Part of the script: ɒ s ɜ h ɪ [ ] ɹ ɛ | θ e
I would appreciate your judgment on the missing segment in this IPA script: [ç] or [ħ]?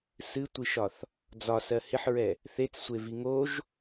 ħ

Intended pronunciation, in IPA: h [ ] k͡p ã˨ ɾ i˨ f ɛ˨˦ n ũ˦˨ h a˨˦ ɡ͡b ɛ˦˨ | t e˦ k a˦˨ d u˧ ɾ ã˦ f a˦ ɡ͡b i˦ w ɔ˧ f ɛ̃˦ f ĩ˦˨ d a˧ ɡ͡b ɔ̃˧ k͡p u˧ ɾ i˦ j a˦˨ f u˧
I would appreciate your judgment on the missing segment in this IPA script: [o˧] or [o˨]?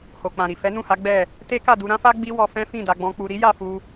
o˨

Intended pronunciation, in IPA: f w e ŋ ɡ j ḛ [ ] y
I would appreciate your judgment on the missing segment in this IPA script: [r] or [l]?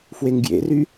r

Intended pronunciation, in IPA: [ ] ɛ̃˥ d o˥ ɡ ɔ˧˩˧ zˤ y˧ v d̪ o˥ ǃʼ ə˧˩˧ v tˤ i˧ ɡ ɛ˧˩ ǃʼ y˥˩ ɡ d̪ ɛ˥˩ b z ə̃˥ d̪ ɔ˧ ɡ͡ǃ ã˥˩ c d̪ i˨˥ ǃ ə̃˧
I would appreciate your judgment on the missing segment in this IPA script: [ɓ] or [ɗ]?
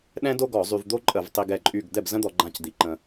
ɗ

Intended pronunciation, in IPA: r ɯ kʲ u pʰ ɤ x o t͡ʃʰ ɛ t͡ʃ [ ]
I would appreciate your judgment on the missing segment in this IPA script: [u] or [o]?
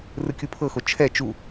u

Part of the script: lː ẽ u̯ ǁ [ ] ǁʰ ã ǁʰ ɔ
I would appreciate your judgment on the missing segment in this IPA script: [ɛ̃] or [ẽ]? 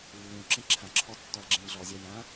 ɛ̃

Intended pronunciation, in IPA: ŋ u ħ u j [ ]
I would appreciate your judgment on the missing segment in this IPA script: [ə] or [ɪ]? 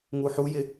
ɪ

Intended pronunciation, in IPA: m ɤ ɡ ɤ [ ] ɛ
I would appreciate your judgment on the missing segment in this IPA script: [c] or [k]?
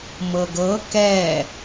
k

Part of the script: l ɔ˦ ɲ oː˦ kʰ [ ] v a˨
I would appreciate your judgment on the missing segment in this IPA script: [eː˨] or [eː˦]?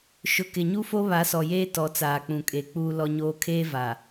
eː˦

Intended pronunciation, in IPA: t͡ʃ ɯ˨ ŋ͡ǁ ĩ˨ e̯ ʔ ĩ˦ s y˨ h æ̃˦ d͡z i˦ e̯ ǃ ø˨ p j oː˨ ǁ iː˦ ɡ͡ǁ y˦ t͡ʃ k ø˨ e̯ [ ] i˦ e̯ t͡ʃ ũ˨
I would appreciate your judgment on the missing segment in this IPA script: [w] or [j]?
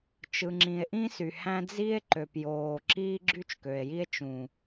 j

